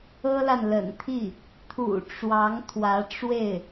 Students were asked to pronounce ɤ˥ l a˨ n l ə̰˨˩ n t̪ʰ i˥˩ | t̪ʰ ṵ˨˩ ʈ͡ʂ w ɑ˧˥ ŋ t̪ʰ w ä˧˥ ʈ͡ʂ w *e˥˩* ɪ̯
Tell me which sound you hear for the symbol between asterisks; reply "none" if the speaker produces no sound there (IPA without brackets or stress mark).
e˥˩